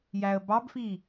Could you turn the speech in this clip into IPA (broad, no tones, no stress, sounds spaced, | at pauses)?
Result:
j æ ə̯ b ɑ b f i